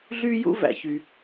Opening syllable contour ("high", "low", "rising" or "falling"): high